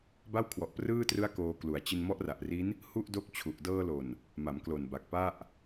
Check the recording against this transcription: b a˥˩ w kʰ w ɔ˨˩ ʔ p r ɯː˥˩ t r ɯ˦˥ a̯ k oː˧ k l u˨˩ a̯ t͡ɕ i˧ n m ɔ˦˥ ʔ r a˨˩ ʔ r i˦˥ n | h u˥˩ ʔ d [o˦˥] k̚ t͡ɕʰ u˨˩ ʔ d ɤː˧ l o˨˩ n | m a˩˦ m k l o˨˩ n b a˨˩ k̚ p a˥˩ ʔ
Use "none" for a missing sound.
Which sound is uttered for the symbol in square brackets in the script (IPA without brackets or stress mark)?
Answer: o˦˥